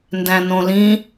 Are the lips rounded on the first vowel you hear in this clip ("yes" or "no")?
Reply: no